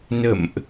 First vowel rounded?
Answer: no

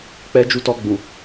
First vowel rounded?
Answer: no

